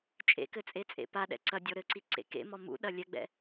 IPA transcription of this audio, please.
t͡ʃʼ ḛ k ɘ t͡sʼ e t͡sʼ ḛ p a ɗ ɛ̰ ǀ ɐ dʲ ɔ ɾ ɘ ǀ i ǀ ḛ k ḛ m ɔ m ṵ ɗ ɐ lʲ ɛ ɡ͡b ɛ̰

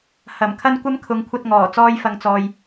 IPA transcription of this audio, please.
h ɐ˨˩ m kʰ ɐ˥ n kʷ ɐ˥ m kʰ ʊ˨˥ ŋ kʷʰ ɐ˧ t̚ ŋ ɔː˨˩ t͡s ɔː˥ j f ɐ˧ ŋ t͡s ɔː˧ j

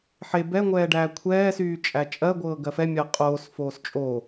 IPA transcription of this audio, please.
ħ e b ɛ ŋʷ ɛː ɖ æː kʷʰ ɛː s yː t͡ʃʼ æ t͡ʃʼ ɜ ɡʷ ɤː ɡ ɜ f ɛ mʲ ɜ qʼ oː s f oː s t͡ʃʼ o

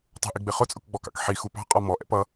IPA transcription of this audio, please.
tˤ ṳ ʔ i ɡ͡b ɪ χ ʊ t͡sʼ ʊ k ɡ͡b ɔ k ɑ̰ k ħ i x u p ɑ̤ qʼ ɒ m ɔ ʔ ɛ̰ p ʌ

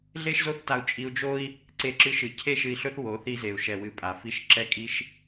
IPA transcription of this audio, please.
ɮ e˦ ʃ z o˦ θ t a˧ u̯ t͡ʃʼ i˧ u̯ d͡ʒ o˦ i̯ | ǀ e˧ ǁ ɨ˧ ʃ ɨ˨ cʰ e˦ ʃ ɨ˧ i̯ ɬ ɵ˦ θ w o˨˦ θ i˧ z e˨ u̯ ʃ ɛ˨ w ɨ˨ pʼ a˨ f i˦˨ ʃ ǁ ɛ˧ kʼ i˧ ʃ

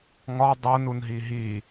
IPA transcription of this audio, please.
ŋ ɒ dˤ o n u n ɦ i ɦ i

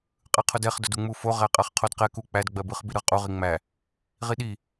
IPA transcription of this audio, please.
qʼ ɯ qʰ ʊ d ɛ χ d ʊ d u ŋ͡m u f o ʁ æ qʼ ɜ χ qʰ o d q ɛ k u k͡p æ d ɡ͡b ɜ b ɯ χ b i ɾ ɯ ʁ qʼ u ʁ i ŋ͡m æ | ʁ i ɗ i

